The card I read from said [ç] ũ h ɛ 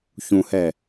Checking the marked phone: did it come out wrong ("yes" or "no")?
no